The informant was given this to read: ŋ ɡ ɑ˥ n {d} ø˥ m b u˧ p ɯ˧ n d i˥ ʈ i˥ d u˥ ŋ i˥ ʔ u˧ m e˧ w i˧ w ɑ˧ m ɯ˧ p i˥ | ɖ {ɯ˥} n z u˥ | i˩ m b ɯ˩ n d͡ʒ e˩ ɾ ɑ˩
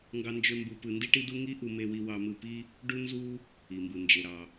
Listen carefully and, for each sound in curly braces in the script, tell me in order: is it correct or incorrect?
incorrect, incorrect

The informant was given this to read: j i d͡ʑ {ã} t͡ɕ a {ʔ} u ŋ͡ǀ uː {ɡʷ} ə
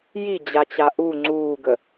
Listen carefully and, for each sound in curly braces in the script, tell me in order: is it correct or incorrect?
incorrect, correct, incorrect

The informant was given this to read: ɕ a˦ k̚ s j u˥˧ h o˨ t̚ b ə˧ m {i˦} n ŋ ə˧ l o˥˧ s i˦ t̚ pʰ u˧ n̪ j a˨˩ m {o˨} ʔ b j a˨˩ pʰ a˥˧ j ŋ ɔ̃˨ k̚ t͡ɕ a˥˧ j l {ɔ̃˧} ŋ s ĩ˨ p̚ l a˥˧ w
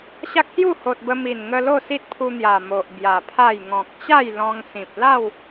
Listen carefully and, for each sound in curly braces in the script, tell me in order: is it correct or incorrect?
incorrect, correct, correct

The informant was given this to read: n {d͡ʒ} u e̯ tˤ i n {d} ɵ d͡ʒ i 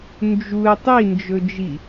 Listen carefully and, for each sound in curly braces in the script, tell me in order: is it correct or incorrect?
correct, incorrect

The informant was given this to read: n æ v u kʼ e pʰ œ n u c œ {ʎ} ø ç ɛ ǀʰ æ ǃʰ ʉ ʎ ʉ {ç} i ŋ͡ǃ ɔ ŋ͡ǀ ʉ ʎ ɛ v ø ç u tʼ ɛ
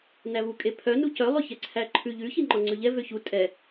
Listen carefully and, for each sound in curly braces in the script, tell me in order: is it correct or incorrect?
incorrect, correct

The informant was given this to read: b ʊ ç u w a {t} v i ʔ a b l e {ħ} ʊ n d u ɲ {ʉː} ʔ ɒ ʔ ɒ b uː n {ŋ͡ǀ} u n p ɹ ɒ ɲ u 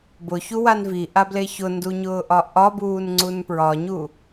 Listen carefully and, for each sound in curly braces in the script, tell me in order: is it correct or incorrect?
incorrect, incorrect, incorrect, correct

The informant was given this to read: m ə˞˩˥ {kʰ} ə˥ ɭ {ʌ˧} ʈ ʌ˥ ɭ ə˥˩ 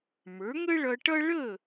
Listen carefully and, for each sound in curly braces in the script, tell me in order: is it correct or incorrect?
incorrect, correct

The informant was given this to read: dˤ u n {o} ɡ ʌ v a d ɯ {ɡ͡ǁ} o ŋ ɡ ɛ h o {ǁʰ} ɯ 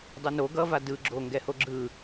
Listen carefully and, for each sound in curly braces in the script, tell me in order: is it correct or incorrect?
correct, correct, incorrect

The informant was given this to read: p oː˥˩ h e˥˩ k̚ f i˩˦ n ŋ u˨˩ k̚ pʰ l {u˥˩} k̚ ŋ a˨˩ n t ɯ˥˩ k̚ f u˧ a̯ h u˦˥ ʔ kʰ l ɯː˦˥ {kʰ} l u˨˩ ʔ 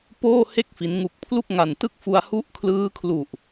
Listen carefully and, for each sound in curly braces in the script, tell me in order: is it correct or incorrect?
correct, correct

